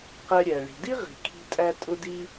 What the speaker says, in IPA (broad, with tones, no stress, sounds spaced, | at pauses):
q ɛ˧ ɾʲ æ˩ ɭ i̤˩ d i˥ ʁ i̤˩ kʰ i̤˧ tʼ æ˧ tʼ ʊ˧ d i˧